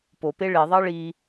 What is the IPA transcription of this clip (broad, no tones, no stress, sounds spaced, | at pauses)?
p o p e ɭ e ðˤ ɑ ɭ i